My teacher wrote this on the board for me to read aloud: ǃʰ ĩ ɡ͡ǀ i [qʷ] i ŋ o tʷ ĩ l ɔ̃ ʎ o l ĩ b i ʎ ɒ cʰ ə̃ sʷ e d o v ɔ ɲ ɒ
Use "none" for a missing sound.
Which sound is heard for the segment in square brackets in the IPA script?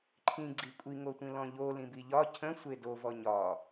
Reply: kʷʼ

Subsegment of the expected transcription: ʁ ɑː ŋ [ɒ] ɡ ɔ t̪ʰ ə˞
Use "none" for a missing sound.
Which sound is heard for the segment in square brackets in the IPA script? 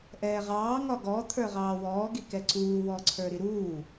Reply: ɒ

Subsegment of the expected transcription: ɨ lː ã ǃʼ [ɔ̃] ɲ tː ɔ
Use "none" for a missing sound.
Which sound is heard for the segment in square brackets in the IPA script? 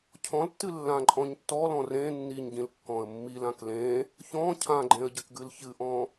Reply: ɔ̃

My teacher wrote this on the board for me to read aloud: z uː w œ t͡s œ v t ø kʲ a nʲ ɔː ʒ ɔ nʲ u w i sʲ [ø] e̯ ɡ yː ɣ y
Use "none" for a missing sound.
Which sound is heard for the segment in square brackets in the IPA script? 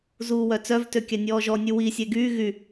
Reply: ə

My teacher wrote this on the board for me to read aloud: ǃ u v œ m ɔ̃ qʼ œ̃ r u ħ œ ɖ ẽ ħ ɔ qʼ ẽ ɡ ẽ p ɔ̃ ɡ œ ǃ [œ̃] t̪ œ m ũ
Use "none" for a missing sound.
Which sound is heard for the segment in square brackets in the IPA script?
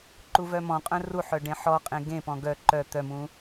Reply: œ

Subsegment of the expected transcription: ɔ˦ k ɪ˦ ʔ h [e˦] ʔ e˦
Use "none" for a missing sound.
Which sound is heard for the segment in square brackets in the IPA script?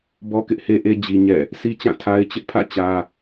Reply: e˦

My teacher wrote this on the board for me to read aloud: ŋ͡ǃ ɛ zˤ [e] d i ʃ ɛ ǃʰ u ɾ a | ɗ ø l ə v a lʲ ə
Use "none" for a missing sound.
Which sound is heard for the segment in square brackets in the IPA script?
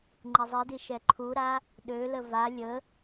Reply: i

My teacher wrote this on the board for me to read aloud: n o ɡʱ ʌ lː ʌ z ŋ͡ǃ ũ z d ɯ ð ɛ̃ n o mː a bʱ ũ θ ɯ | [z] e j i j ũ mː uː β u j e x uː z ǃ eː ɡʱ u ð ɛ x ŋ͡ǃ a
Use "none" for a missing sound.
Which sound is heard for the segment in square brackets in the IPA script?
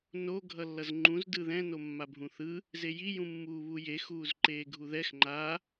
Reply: z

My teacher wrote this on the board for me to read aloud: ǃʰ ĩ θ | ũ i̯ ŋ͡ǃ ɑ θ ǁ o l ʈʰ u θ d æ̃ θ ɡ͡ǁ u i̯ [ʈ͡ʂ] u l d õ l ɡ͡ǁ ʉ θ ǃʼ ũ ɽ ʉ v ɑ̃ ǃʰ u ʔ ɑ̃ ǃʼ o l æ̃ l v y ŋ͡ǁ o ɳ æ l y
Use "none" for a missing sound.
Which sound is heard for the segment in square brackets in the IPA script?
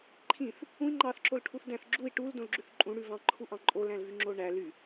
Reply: ʈ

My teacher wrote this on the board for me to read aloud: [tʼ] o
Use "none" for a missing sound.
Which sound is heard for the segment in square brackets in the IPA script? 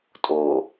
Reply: tʼ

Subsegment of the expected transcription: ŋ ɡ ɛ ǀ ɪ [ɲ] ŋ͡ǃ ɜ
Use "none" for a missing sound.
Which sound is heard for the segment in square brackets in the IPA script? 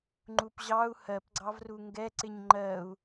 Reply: ɲ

